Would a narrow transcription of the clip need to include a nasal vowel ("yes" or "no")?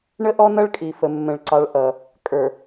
yes